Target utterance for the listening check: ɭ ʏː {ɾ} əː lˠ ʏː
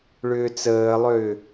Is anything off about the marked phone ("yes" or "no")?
yes